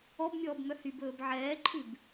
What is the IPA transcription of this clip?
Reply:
ɔ b mʲ ɔː b m œ h y b ɵː b ʕ ɛː ǃʰ ʉ b

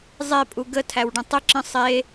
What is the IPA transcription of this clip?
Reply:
zˤ e pʼ u ɡ ə tʰ æ w ɖ ə̃ tˤ ə ǁ ə̃ sˤ e

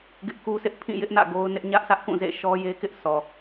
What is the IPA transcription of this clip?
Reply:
ɡ ɪ˦ ʔ k u˦ sʰ ɪ˦ ʔ pʰ ĩ˦˨ j ɪ˦ ʔ n ä̰˦˨ ɡ o˦ ʊ̯ n ɪ˦ ʔ ɲ ä˦ ʔ sʰ ä˦ ʔ k ũ˦˨ z ḛ˦˨ ʃ ɔ˦ j e˦ k ɪ˦ ʔ s ɔ˨

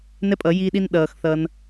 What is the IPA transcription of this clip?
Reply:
n ɛ˦ pʼ ʌ˨˦ j iː˦ ɗ i˦ n ɗ ʌː˨ x θ ʌ˧ n

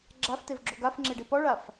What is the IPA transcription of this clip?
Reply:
ɡ͡ǁ a f t e v ɡ͡ǁ o ɡ a f ŋ͡ǁ e ɖ e p ɔ ɭ a f

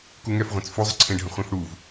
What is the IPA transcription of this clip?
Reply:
k u ŋ ɛ f ʁʷ ẽ t͡s f u zˤ ə ǀʰ ẽ ɖʱ ə̃ χʷ ẽ f ɽ u v

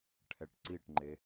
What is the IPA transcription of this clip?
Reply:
ʈʰ ɛ ʈ ǀ i ʈ ŋ͡ǃ e

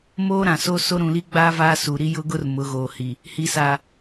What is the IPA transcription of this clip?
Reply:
m oː˦ ɾ ã˨ s oː˦ s o˦ ɾ ũ˨ l i˦ ɡ͡b aː˦ v aː˦ s u˨ ɾ i˦ j ʊ˦ ɡ ʊ˦ r m ʊ˨˦ ɣ oː˨ h i˨ | h i˨ s a˨

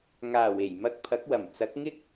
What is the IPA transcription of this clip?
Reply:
ŋ aː˨˩ w e˨˩ j m ɐ˧ k̚ pʰ ɐ˨˥ k̚ w ɐ˨˩ m t͡s ɐ˨˥ k̚ ŋ ɪ˥ k̚

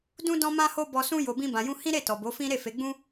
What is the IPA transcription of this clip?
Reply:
d ũ˦ d ɔ̃˦ m ã˦ h o˦ b ɔ˧ s ũ˦ j o˧ b ĩ˦ b ã˧ j ũ˦ h ĩ˦ ɾ e˦˨ t ɔ˨ b o˨˦ f ĩ˦ ɾ e˦˨ f e˨˦ ɡ͡b ũ˦

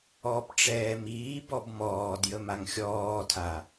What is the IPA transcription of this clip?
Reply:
ɔ p ʈ͡ʂ ɛː m iː b ɔ b m ɔː d j ə m a ŋ xʲ ɔː tʰ a

